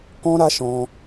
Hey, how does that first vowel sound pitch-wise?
high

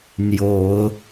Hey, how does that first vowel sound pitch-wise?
rising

